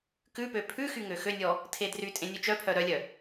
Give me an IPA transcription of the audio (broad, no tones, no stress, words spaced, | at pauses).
kʉpø pʰʉxy ŋøxønʲɔ | tʰedrytʼẽ nʲʉt͡ʃœpʰœ ɾœlʲœ